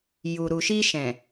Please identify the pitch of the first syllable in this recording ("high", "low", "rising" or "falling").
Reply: low